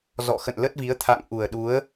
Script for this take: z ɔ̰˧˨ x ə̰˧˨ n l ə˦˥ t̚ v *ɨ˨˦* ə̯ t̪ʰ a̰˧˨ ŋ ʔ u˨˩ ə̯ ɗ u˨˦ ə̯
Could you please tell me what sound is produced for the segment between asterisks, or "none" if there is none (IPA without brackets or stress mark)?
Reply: i˨˦